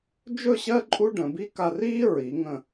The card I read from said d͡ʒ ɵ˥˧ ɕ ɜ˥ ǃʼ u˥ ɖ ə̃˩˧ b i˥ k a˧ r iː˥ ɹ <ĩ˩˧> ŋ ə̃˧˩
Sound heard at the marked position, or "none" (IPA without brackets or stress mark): i˩˧